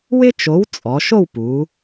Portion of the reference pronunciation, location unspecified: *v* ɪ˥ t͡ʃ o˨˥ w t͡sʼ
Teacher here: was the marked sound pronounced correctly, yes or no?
no